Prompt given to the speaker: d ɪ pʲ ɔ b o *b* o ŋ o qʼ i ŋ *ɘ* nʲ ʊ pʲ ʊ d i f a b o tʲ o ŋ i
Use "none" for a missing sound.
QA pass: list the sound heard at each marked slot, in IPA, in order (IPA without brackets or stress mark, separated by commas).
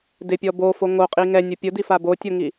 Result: f, ɛ